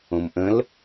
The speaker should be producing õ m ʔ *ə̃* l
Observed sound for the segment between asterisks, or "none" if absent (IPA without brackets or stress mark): ə̃